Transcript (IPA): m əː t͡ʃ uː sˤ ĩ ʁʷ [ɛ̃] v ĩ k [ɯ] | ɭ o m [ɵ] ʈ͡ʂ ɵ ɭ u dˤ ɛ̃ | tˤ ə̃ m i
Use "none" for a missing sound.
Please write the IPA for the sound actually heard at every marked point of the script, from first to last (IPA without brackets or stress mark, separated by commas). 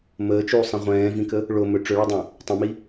ɛ̃ː, ə, ɵ